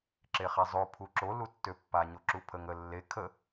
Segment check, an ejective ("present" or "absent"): absent